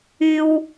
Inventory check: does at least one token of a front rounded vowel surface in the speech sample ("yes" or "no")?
yes